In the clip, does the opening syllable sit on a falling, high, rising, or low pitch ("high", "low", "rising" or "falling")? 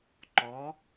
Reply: rising